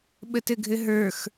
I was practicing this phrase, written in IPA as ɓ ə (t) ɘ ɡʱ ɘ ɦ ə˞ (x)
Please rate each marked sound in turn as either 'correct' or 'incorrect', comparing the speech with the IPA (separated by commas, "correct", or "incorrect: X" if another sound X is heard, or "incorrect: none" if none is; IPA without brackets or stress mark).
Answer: correct, correct